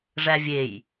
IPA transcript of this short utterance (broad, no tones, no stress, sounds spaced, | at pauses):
ʐ æ vʲ e j